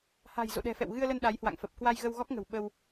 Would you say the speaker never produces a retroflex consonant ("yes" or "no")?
yes